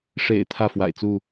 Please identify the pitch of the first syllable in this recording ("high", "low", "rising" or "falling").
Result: low